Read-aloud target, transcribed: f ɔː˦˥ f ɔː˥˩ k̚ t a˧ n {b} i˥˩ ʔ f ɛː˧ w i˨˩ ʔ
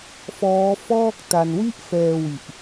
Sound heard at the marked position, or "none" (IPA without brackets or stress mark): w